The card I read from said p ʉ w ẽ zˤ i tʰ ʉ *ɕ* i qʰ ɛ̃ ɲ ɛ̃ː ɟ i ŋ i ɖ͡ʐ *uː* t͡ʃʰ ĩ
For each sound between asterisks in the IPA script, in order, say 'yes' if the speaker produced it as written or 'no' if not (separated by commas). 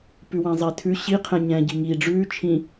yes, no